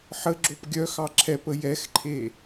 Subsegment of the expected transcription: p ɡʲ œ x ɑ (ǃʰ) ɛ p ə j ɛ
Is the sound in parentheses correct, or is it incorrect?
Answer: incorrect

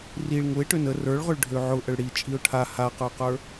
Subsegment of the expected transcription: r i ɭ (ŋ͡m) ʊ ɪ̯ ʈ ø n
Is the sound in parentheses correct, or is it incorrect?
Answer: incorrect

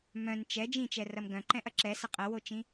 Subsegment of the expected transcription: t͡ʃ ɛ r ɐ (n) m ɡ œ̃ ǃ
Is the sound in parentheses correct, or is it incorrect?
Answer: incorrect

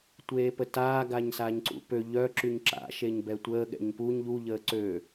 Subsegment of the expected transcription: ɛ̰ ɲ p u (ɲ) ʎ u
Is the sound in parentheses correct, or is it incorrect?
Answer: correct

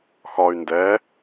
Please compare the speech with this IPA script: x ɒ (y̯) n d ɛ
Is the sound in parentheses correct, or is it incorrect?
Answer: correct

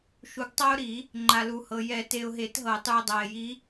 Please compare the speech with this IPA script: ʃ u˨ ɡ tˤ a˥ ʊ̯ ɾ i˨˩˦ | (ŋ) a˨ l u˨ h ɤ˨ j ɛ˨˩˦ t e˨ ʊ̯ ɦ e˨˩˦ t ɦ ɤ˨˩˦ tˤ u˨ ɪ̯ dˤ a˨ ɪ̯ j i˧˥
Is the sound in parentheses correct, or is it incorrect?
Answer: incorrect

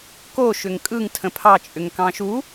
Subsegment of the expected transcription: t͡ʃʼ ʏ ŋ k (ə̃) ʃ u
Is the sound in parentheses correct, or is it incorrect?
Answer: incorrect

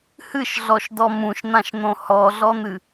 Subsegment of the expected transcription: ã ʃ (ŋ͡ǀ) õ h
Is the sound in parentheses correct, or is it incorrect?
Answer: incorrect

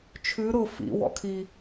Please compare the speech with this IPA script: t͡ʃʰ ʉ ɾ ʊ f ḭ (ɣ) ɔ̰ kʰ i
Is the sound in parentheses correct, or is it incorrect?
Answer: incorrect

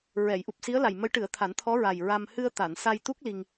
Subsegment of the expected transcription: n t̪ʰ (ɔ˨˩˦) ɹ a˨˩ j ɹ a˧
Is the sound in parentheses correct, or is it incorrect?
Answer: incorrect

